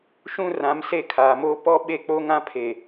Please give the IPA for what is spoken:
ʃ ũ˦ r ã˨˦ m s e˦˨ kʰ aː˨ m oː˦ p ɔ˦ ɓ e˦˨ k͡p o˦ ŋ ã˦ pʰ e˨

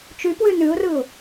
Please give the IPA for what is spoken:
t͡ʃ y p w ʉ n ʉ ʊ̯ r ɯ ʊ̯

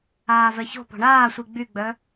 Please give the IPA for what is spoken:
aː v ɛ ç o̤ p o̤ ɳ aː sʷ i ɡ͡b y ɡ͡b œ

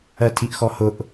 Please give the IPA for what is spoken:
ɜ tʰ i ʔ x ɔ h ʊ ʔ

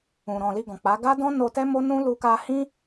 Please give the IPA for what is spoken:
ũ˨ ɾ ɔ̃˨ l i˧ ɡ ɔ̃˨ k͡p a˨˦ ɡ a˦ d ɔ̃˦ n o˧ t ɛ˦ m o˦ n ũ˦ l u˧ k a˧ h ĩ˦

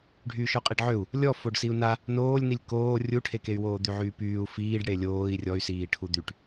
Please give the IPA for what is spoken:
ɖʱ yː ʃ ɔ qʼ i ɖ ʕ ø u̯ | lʲ ɔ f o ɖ s i u̯ n a | n oː lʲ n i lʲ k oː rʲ u ʈʰ e k e y̯ w oː d̪ y ʕ yː p yː u̯ f iː ɖ ɽ e lʲ oː i̯ rʲ ɔ y̯ s iː ʈʰ u d̪ y ʈ

